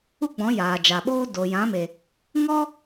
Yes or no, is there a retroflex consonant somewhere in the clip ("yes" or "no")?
no